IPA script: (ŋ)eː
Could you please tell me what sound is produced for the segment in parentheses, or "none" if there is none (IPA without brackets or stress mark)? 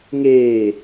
ŋ